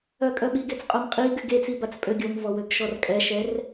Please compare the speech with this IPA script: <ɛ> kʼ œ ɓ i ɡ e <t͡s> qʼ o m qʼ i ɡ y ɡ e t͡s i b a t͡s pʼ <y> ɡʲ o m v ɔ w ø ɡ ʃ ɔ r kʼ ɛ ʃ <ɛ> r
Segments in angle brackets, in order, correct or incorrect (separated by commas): incorrect, correct, incorrect, correct